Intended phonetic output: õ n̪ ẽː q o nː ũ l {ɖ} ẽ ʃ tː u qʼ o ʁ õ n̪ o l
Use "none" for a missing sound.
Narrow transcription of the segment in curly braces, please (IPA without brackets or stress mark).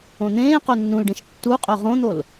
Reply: ɖ